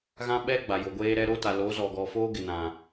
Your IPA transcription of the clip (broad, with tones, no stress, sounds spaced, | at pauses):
ɣ ã˦ ɓ ɛ˦ ɡ͡b a˨ j o˨ ɡʷ eː˦ ɾ ɛ˦ ɾ o˦ t a˨ l o˨˦ z ɔ˨ ɡ ɔ˨ f oː˦ ɡ ɪ˨ n ã˨